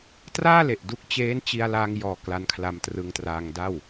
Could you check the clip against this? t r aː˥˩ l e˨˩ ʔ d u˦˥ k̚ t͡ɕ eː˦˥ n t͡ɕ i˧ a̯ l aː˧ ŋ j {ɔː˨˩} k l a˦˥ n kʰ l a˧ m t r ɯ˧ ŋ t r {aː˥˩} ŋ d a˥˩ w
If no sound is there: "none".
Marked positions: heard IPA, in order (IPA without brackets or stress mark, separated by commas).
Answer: ɔː˨˩, aː˧